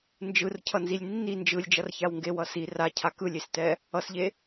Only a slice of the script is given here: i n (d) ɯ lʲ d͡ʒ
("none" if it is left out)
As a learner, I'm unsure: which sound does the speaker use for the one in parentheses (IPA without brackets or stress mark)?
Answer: d͡ʒ